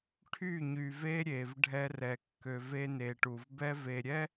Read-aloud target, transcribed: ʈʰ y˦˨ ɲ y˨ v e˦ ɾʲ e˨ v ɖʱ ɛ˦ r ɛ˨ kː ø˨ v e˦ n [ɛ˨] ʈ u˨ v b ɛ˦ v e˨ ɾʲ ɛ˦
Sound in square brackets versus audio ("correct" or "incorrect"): incorrect